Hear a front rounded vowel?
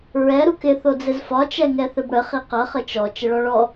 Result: no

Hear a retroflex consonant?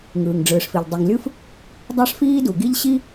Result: yes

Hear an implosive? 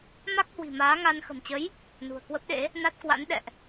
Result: yes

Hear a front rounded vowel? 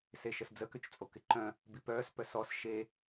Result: yes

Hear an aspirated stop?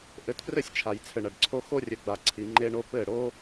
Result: yes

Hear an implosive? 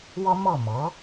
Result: no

